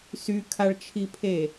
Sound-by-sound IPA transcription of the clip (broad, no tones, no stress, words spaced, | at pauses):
sykʰaɭt͡ʃʰipʰe